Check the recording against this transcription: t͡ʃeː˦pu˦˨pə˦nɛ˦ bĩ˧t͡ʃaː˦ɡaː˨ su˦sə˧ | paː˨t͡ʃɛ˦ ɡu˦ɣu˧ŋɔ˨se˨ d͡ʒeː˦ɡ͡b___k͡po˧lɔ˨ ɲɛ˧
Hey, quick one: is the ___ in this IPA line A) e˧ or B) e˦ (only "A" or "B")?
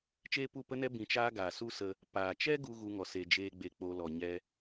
A